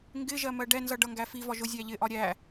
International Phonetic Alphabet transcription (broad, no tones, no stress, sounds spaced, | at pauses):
ŋ ɡ ɪ ʒ ɜ m ɜ ɖ ɛ n z ʌ ɖ ʌ ŋ ɡ æ f i v ɒ ʒ ʊ zʲ æ ʎ ɪ ʔ ɒ ɾʲ æ